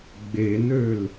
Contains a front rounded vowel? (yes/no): yes